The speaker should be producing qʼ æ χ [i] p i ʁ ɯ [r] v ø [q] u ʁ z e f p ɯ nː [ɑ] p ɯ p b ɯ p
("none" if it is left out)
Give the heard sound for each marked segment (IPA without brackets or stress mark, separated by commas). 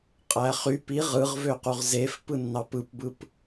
y, ʁ, q, ɑ